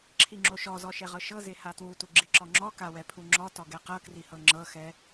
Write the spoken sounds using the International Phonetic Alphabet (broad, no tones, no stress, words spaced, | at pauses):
ǁʰiŋ͡ǁoʃɔzɔ ʃɛʁɤʃɤze hatwutu ɡ͡ǁiǁɔŋ͡ǁɔka wɛpʰuŋ͡ǁɔtɔ ɡɛqɤkrihɤ ŋ͡ǁɤxɛ